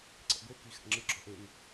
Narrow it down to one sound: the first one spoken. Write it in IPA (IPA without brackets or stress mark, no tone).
ǀ